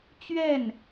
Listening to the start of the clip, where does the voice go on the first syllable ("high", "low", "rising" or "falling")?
falling